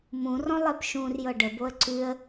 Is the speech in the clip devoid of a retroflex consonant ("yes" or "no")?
no